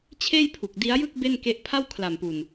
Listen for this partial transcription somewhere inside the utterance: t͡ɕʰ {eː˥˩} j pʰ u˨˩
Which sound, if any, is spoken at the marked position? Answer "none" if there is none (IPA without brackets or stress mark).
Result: eː˥˩